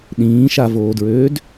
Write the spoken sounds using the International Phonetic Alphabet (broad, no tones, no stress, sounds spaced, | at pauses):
ɗ ĩː ʃ a v oː d ɹ øː d